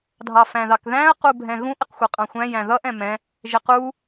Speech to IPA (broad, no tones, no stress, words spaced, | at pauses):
dʱɑfæ̃ðɑkðæ̃ə̯ qubʱɛ̃ɣũʔ ɪqxʷʌqʼɑ̃xʷæ̃ jæ̃ðʌʔ ɛ̃mɛ̃ | ʒɪqu